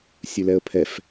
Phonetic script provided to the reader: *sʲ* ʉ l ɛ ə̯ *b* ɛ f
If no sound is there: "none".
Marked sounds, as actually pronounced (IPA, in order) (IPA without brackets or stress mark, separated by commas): sʲ, pʰ